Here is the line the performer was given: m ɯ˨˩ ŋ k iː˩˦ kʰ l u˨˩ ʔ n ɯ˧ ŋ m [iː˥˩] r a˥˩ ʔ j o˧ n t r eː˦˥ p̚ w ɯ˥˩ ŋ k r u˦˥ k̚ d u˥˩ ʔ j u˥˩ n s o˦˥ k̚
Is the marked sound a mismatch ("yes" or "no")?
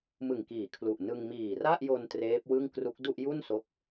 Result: yes